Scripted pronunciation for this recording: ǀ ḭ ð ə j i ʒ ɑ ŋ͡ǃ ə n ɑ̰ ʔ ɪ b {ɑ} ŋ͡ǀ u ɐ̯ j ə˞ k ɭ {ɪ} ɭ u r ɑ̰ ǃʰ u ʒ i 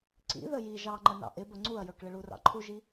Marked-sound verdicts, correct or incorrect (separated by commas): incorrect, correct